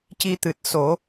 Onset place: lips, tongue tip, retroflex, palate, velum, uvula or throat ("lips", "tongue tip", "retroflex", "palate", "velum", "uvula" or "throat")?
palate